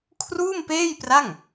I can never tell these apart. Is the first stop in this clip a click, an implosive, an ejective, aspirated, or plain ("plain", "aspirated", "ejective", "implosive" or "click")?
aspirated